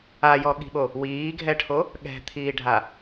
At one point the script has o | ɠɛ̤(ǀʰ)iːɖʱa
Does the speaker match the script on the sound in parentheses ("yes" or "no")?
no